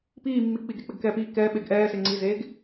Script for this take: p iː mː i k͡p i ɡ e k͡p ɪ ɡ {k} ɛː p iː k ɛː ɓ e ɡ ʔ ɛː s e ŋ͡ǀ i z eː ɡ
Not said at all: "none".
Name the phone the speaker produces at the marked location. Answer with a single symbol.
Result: k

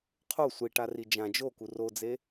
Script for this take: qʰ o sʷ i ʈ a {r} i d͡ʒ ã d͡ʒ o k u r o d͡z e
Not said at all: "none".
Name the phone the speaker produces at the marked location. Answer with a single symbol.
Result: r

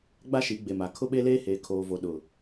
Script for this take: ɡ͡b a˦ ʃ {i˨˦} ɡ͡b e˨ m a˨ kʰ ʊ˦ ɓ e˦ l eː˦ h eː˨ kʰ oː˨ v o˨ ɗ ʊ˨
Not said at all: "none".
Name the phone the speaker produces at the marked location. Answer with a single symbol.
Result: i˨˦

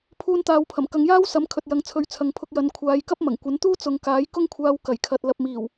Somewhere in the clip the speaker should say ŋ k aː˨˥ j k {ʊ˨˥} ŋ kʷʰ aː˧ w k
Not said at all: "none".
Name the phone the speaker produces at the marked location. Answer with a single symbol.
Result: ʊ˥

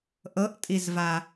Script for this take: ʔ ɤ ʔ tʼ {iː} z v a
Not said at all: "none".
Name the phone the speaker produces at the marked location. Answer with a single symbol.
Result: i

